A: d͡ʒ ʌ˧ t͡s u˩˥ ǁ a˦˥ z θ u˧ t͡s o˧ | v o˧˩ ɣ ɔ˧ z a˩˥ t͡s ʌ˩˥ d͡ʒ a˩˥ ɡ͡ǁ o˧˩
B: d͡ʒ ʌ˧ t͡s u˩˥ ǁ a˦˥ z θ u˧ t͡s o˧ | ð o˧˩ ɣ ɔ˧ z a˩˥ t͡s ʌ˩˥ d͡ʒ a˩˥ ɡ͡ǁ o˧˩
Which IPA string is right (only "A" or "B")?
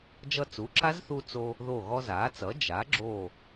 B